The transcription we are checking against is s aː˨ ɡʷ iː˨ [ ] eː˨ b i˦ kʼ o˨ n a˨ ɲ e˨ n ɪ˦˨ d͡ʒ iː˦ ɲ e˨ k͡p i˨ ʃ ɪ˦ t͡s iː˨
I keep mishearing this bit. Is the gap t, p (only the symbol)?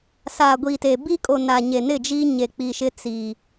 t